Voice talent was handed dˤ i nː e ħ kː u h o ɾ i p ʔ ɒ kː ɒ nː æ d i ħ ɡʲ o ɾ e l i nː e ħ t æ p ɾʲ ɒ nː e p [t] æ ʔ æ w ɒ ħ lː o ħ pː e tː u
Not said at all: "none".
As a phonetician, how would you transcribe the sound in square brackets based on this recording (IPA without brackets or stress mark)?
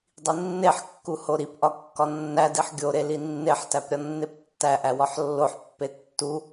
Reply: tː